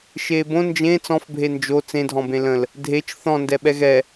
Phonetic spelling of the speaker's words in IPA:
ʃ eː b õ n d͡ʒ ẽ t͡s ɔ̃ f bʱ e n d͡ʒ o t͡s ẽ dʱ ɔ̃ b ẽ l ə̃ l | dʱ e t͡ʃ θ ɔ̃ n d ɛ ɓ ɛ ɣ ɛ

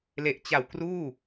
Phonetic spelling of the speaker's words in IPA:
l e˨˩ ʔ t͡ɕ a˨˩ w k r uː˥˩

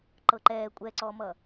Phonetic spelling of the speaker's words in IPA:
ǃ ɤ ǃ ɛː kʷʼ ɛ ǀ ɔ m ʌ

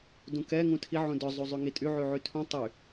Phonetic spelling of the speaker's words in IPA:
d ũ k ɛ ŋ ũ tʰ i ʕ ũ d œ zˤ u zˤ y ŋ i tʼ y ʕ y ʕ y tʰ ũ tˤ y

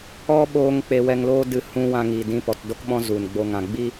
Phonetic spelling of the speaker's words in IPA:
ɔ˦ ɓ oː˦ ŋ k͡p e˧ w ɛ˧ ŋ l oː˦ d ɨ˧ h ũ˧ w ã˧ ŋ iː˨ d ĩ˧ p ɔ˨ t d o˦ k ɓ ɔ̃˦ z u˨ n ɡ͡b o˧ ŋ ã˨ ɡ͡b i˦

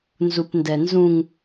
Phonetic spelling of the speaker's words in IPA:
n z u p n d ɛ n z ũ ŋ

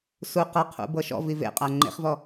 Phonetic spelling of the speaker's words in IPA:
s u q ɤ qʰ ṵ b ɤ ʃ ɔ̰ v i v ḛ qʼ a ŋ͡ǃ ḛ χ v ɔ

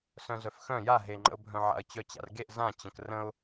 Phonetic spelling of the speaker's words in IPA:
s œ̃ z œ f x œ̃ j a ɦ e ŋ͡ǃ ə̰ ʊ̯ bʱ œ̃ ʕ a̰ ə̯ t͡ɕ œ t͡ɕ a̰ r ɡ e ʔ z ã t͡ɕ ə̃ k r ə̃ ʊ̯

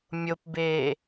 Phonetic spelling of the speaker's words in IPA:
mʲ o p b eː

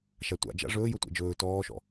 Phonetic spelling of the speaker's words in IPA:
ʃ a tʷ a̰ d͡ʒ a̰ ʐ ɵː j ɵ tʷ ɛ̰ d͡ʒ ɵː t ɔː ʃ ɔ̰

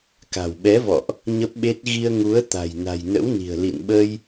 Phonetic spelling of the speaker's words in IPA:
k a̤˨˩ w ɓ ɛ˨˦ v ɔ̰˧˨ ʔ | ɲ ə˦˥ p̚ ɓ e˦˥ t̚ ɣ i˧ ə̯ ŋ u˨˦ ə̯ t̪ a̤˨˩ j n a̤˨˩ j n ə̰˧˥ w n i̤˨˩ ə̯ l ḭ˧˨ n ɓ ə˧ j

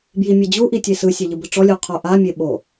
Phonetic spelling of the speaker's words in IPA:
b j i mʲ ɛ d͡ʑ u ʔ i tʲ e s ɯ sʲ ɛ ʎ ɯ b ɯ ʈ͡ʂ ɔ lʲ u qʰ o ʔ a mʲ e ɓ o

